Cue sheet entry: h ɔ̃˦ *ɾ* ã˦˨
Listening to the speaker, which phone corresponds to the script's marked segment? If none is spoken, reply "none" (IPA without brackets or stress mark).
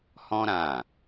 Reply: ɾ